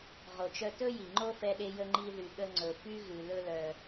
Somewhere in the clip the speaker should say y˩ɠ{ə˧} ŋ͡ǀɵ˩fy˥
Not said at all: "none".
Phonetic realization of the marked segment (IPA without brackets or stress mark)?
ə˧